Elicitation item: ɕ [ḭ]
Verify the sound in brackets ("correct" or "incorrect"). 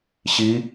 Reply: incorrect